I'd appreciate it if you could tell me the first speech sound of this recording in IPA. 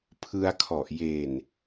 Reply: pʰ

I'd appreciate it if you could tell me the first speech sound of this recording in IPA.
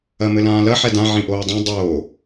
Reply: ɐ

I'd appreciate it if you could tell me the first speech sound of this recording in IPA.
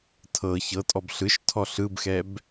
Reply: tʰ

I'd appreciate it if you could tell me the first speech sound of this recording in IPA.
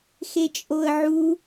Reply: x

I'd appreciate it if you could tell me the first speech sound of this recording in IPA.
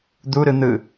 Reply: d̪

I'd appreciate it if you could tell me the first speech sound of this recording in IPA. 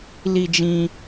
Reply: l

